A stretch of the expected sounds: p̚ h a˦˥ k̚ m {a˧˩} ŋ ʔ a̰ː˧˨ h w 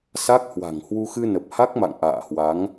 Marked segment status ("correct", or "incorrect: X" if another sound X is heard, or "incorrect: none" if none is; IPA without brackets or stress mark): incorrect: a̰˧˨